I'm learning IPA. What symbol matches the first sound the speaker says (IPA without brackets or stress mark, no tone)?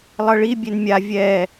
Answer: lˠ